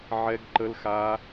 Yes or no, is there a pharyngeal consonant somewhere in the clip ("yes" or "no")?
yes